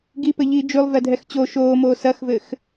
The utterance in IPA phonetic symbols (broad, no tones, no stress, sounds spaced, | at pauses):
ɡ i p ɘ ʎ iː d͡ʒ ʉ lˠ v ɛ dʱ ɛ x t͡ɕ o ʃ oː m oː s ɐ x v ɘ x